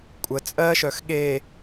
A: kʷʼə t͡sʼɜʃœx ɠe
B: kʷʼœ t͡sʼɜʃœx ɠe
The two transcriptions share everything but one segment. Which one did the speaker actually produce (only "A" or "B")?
A